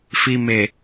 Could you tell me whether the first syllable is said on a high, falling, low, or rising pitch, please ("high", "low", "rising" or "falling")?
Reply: low